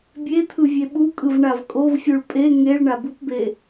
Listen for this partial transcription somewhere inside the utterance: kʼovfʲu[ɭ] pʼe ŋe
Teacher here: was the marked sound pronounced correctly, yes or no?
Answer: yes